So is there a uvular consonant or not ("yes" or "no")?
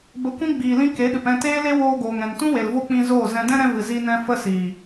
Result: no